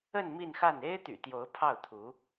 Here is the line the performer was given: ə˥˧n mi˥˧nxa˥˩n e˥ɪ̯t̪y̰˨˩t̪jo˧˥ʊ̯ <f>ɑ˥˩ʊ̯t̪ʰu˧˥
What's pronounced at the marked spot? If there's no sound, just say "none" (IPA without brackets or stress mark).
pʰ